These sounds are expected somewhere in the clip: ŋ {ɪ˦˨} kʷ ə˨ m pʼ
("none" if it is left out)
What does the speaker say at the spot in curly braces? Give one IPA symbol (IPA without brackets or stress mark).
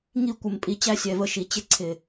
i˦˨